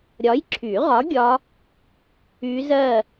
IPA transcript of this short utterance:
ɾʲ ɒ˨˥ j ǁʰ y˨˩˦ ʁ ɒ˨˥ ɡʲ ɒ˦˥ | y˦˥ z ɜ˥˧

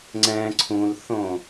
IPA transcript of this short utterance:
ŋ͡ǀ ɛ̃ ǀʰ ũ l θ õ

